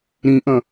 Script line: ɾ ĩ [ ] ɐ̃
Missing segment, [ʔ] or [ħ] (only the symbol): ʔ